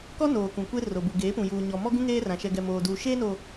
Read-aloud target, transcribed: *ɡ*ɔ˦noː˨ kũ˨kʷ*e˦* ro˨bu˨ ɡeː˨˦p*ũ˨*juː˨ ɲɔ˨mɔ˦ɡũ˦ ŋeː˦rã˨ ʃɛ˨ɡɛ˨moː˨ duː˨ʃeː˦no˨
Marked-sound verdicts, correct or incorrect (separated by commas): incorrect, correct, correct